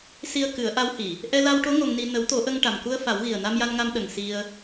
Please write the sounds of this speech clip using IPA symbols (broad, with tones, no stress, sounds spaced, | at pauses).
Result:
s i˧ ə̯ k ɨ˨˩˦ ə̯ ʔ a˧˥ w h i˨˩˨ | ʔ ɛ˧ l a˧ w ʈ o˧˥ ŋ o˧ ŋ n i˧ n ə˨˩˦ w t̪ o˨˩˦ ʔ ə˧ ŋ ʈ a˨˩ m k u˧ ə̯ f a˨˩˦ w ɣ i˨˩ ə̯ n a˧ m j a˧ n ŋ a˧ m ɗ ə˨˩ ŋ s i˧ ə̯